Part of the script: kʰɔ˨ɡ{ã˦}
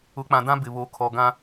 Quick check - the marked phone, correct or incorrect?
correct